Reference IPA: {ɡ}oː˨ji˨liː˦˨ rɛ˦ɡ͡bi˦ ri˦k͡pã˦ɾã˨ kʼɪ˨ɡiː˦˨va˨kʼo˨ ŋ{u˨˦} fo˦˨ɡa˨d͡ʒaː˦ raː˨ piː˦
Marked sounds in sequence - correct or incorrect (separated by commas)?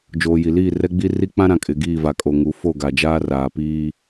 incorrect, correct